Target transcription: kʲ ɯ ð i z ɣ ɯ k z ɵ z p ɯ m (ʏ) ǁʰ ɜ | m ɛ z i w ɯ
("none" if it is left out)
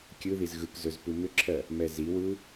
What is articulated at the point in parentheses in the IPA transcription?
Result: ʏ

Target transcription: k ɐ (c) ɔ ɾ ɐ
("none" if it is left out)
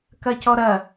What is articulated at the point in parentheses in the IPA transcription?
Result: c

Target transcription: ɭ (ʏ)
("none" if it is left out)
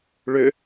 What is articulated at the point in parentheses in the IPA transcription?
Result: ʏ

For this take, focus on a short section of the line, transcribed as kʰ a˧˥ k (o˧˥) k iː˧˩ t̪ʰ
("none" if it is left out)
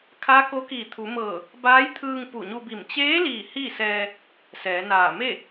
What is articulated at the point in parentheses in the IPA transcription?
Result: o˧˥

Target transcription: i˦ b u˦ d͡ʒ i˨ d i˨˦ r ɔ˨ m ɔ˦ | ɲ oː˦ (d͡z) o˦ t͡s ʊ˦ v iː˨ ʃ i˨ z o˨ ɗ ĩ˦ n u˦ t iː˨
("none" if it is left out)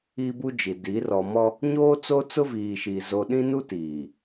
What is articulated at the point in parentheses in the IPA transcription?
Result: t͡s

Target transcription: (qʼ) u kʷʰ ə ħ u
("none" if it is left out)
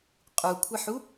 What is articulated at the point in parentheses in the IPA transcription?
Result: qʼ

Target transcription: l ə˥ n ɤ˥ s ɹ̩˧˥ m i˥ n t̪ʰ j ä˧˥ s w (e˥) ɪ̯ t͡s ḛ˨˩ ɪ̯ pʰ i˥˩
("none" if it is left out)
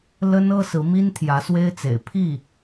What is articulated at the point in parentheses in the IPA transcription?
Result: e˥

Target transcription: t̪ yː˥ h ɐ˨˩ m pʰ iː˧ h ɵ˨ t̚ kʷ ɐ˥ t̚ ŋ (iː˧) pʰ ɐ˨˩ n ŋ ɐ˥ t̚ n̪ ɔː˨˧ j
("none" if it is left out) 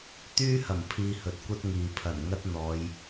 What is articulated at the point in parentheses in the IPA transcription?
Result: iː˨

